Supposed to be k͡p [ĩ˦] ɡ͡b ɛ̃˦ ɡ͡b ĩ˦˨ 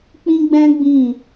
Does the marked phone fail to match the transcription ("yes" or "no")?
no